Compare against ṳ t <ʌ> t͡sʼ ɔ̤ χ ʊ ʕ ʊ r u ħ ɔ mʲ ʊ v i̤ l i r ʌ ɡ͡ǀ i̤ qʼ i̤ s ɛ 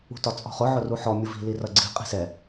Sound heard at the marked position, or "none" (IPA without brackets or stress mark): ɒ